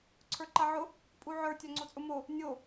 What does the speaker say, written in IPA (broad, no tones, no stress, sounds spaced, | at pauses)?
ǀʰ ə˞ ǃ a ʕ ʊ | pʼ u ʕ ə˞ tʲ a ŋ͡ǀ o t͡sʼ ʊ m o | nʲ o